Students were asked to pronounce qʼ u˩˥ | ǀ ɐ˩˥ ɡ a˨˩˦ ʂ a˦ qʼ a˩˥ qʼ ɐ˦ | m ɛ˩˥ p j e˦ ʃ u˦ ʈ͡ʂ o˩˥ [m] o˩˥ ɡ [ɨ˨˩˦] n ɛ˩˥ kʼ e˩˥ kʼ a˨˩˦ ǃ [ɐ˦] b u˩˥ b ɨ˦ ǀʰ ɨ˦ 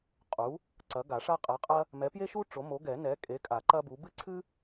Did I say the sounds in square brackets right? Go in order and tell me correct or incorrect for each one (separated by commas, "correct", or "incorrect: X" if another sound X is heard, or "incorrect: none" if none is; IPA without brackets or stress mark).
correct, incorrect: ɛ˨˩˦, correct